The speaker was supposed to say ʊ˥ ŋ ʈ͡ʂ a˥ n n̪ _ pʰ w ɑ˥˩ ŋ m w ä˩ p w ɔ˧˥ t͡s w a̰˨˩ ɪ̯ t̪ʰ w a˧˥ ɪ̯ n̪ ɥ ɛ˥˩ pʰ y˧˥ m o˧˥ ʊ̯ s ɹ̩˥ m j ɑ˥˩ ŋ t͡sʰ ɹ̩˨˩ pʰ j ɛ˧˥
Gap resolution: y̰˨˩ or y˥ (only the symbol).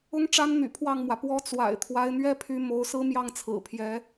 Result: y̰˨˩